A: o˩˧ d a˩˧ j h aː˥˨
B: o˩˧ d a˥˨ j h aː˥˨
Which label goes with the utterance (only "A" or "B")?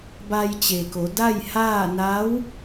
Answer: B